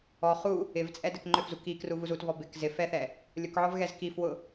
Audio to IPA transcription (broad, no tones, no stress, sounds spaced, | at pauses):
ɔ χ u | ɪ v t͡sʼ ɛ d ɛ k ŋ͡ǃ ʏ f z u k i k r u v u z u t v ɔ b ɪ k z ɪ f ɛ θ ɛ | lʲ ʊ k ʕ ɔ v ɣ ɛ z k i f w ʊ